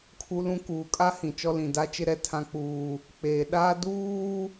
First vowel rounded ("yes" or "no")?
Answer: yes